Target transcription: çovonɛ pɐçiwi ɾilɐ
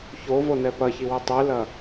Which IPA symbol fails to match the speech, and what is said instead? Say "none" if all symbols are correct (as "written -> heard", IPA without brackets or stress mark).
ɾ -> tˤ